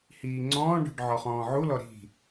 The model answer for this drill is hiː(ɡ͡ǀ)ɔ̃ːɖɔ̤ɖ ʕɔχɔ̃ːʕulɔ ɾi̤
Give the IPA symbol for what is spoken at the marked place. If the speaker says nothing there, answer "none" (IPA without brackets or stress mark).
ŋ͡ǀ